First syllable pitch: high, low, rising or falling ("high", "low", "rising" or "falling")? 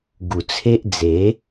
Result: low